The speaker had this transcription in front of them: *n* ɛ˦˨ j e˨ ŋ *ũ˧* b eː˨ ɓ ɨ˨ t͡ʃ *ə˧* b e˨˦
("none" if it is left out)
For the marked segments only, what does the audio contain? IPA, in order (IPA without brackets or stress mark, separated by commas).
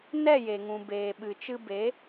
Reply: n, ũ˨, ɨ˧